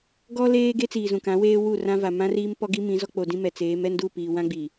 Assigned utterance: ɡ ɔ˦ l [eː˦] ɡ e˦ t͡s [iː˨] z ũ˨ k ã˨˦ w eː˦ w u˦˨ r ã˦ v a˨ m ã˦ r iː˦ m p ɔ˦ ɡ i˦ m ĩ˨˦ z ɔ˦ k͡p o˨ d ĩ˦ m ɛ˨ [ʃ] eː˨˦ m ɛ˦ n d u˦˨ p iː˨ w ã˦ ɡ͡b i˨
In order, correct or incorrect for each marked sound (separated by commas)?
correct, correct, incorrect